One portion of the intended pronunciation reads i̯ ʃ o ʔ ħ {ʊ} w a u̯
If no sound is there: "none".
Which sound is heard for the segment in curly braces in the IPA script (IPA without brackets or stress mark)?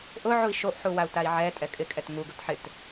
u